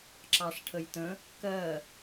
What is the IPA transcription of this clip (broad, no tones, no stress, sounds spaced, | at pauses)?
ǁ ɑ ʂ ʈʰ ə j t ə̃ | k ɜ